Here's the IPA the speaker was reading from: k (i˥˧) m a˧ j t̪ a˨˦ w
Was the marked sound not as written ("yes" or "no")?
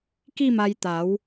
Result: no